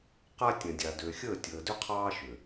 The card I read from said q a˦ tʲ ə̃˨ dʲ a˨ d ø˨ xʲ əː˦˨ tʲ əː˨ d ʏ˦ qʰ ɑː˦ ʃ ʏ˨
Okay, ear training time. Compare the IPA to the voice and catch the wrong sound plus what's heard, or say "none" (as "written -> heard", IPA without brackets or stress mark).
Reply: none